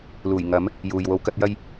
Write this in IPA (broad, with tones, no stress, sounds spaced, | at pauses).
l uː˨˩ j ŋ ɐ˨˥ m | j uː˨ j w o˧ w k ɐ˥ t̚ j ɐ˥ j